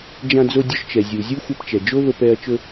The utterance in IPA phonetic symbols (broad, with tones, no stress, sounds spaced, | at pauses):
d͡ʒ ã˧ d͡z o˧ dʲ ɵ˧ ʃ t͡ʃ ɛ˩ zʲ u˩ zʲ u˥ xʷ ɛ˧ p t͡ʃ ɛ˩ d͡ʒ o˥ v ə˧ p ɛ˧ ɐ̯ t͡ʃ ɵ˧